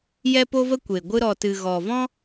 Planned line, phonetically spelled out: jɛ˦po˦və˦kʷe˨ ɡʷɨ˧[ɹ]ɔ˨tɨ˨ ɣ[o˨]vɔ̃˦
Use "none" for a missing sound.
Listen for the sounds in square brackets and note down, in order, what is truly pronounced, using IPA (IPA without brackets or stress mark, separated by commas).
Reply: ɾ, ɔ˨